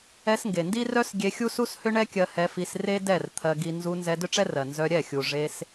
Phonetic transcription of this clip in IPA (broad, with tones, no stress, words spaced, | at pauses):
ɛ˧sŋɡe˨ndi˦ rœ˦s ɡʲe˧xʲu˦su˦s hʏ˦ɳɛ˦kʲɜ˧ hɛ˧fi˧s re˦ dɛ˦˨rt̪ʰɜ˧ɡi˧ nzu˧ nzɛ˧dʏ˦ʈ͡ʂɛ˦rɜ˨ nzœ˧ɾʲɛ˦˨xʲu˨ ʐe˧s